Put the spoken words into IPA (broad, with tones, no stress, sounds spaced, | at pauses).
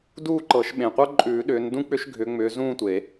d uː˥˧ ǃ ɤ˨˩˦ ʃ ɓ ẽ˨˩ qʷ ɤ˥ ǃʼ ʉː˨˩˦ ɗ ʏː˨˦ n d ũ˥ k͡p ʏ˥ ʃ ɡʱ ʏ˨˦ ŋ͡m ʏː˨˦ z ũː˥˧ tʷ e˨˩˦